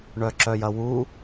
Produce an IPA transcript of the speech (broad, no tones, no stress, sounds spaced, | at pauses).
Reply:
ɳ œ ǁ œ j ɐ w u